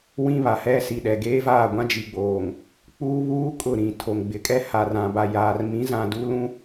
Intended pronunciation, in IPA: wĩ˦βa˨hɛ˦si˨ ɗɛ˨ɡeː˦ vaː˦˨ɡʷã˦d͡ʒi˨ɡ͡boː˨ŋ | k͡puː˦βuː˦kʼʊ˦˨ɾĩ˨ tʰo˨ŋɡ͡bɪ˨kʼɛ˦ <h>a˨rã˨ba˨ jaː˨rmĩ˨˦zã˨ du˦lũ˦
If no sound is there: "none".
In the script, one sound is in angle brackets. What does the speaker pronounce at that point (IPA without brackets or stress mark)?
h